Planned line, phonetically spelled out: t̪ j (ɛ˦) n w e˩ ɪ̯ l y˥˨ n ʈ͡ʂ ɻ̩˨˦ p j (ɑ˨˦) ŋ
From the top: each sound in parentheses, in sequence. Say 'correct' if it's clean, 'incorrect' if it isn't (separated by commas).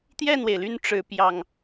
incorrect, incorrect